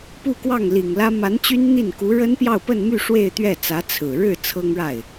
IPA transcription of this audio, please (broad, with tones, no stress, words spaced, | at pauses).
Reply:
pu˥˧kwɑ˥˩ŋli˨˩ŋlä˥ ma˧˥n t͡ɕy˥nn̪i˥˩n ku˧˥ɻə˥npjɑ˥˧ʊ̯pə˥˧n my˥˧ ʂwe˥˧ɪ̯t̪ɥɛ˥˩t͡sä˧˥ t͡sʰɹ̩˨˩ ɻɻ̩˥˩ t͡sʰɤ˥ŋɻa˥˩ɪ̯